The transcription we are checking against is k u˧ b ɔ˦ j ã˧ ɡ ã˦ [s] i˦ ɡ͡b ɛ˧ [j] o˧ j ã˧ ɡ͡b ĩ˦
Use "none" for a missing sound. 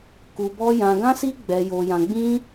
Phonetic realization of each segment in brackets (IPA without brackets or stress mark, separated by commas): s, j